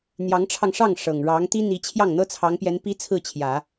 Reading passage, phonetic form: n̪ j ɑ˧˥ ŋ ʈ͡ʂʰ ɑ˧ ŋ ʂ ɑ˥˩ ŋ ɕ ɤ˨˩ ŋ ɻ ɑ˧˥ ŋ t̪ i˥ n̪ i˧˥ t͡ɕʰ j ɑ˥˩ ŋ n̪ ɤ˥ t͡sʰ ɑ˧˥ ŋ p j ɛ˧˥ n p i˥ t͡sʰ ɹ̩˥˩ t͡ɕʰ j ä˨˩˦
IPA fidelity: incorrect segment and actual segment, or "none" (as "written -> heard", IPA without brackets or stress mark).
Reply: ɕ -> ʂ